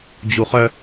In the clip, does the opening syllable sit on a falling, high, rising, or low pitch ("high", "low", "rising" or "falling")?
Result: low